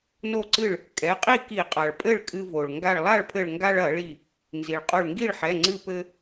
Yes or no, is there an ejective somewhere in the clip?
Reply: yes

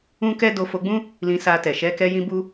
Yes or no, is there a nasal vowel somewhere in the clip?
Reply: yes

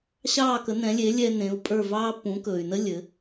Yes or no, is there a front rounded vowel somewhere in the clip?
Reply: yes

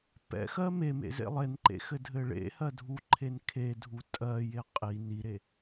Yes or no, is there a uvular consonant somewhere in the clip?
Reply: yes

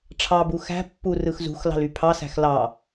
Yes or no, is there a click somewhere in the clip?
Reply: no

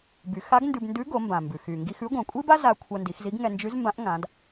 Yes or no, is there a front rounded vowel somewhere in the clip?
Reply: yes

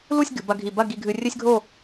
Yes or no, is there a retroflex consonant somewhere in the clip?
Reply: no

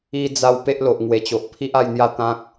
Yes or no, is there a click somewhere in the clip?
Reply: no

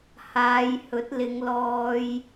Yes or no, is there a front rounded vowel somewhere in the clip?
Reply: no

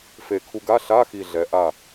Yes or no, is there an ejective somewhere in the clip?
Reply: no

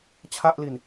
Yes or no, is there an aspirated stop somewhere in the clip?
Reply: yes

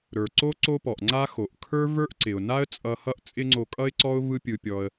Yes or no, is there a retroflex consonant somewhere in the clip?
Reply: no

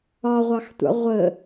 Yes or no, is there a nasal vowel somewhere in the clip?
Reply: no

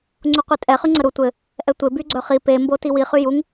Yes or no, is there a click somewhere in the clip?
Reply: yes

